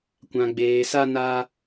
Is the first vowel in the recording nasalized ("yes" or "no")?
yes